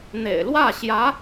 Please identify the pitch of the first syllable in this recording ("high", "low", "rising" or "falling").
low